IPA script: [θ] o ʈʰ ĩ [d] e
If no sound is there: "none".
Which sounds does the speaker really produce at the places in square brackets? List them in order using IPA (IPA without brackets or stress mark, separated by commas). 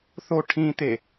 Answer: θ, t̪